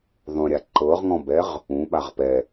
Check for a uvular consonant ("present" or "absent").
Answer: present